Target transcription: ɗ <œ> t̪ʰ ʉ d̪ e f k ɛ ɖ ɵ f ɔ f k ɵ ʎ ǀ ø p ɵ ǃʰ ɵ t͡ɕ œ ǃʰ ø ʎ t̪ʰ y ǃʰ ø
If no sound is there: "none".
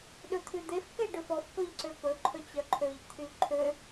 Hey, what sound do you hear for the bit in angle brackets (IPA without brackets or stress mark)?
ɵ